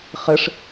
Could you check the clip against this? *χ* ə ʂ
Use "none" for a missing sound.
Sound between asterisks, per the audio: χ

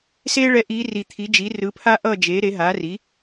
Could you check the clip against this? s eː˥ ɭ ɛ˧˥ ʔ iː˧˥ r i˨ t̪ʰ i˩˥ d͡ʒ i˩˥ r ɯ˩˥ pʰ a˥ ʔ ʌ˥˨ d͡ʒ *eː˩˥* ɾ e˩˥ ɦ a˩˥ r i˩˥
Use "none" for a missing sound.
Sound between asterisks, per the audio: eː˩˥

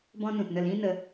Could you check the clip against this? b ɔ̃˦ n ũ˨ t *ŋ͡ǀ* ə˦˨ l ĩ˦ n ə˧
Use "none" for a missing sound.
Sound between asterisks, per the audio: n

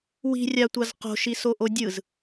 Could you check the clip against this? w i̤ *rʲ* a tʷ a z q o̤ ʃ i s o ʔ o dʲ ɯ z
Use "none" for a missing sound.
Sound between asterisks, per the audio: rʲ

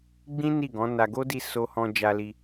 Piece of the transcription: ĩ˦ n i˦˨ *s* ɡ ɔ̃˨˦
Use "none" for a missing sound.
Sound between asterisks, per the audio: none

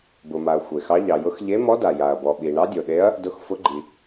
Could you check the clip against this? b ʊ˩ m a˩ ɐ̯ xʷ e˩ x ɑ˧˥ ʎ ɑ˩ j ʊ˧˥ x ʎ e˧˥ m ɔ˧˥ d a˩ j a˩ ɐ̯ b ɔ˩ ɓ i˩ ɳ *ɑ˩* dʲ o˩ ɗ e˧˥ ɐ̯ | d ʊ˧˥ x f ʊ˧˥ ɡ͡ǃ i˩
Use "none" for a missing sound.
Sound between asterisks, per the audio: ɑ˧˥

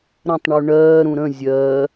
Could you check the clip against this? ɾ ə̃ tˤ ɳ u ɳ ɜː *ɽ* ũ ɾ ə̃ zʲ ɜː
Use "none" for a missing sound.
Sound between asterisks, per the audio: ɾ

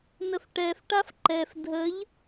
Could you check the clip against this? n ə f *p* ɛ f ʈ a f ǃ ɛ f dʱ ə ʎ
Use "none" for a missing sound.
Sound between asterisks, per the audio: ʈ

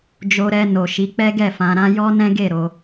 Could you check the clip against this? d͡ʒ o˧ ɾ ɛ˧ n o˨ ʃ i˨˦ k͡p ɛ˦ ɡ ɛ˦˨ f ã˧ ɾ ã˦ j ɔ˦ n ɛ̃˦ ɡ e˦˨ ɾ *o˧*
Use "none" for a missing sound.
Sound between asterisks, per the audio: o˧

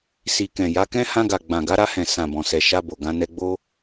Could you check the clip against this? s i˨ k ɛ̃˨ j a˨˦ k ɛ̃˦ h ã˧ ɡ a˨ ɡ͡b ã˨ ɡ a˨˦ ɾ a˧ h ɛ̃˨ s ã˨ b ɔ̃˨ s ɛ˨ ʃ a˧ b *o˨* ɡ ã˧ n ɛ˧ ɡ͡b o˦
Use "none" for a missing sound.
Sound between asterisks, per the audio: o˨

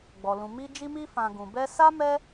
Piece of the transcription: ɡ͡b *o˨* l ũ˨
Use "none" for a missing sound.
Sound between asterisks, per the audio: ɔ˨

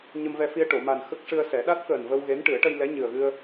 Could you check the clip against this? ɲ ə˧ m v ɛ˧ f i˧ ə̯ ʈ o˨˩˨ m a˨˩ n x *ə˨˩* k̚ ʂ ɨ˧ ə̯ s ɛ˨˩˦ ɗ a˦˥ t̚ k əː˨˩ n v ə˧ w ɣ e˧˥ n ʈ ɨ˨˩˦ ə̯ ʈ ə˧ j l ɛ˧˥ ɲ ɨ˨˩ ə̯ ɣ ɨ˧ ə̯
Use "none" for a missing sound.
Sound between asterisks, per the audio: ə˦˥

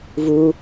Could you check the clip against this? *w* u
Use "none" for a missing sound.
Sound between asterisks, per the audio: v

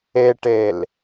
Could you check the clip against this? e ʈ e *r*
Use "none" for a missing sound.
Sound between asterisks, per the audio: l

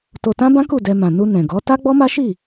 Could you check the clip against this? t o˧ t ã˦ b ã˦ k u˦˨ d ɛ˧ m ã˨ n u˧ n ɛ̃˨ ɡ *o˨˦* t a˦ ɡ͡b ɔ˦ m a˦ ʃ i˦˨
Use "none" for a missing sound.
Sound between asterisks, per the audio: ɔ˨˦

